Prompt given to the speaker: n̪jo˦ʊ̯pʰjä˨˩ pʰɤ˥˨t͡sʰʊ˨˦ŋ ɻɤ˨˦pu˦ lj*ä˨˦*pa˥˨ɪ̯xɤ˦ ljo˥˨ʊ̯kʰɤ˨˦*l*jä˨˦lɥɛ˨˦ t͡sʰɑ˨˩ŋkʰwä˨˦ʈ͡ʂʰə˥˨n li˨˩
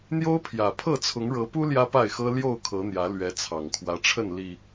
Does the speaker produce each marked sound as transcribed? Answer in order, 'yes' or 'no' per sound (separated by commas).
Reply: no, no